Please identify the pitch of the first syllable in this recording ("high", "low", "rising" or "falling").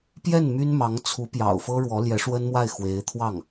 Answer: falling